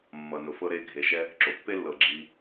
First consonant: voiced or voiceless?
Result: voiced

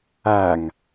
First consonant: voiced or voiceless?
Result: voiced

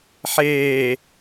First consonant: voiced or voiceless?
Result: voiceless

